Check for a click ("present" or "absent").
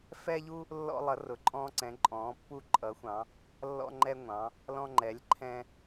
present